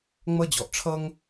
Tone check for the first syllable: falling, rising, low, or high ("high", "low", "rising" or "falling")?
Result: high